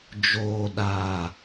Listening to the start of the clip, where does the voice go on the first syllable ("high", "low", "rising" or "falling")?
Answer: low